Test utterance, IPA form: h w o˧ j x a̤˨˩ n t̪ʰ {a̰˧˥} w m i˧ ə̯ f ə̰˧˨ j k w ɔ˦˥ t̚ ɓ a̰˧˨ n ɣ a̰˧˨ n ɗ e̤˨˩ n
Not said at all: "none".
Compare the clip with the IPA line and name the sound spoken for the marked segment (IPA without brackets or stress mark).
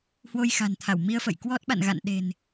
a˧˩